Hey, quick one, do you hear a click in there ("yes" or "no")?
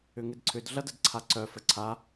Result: yes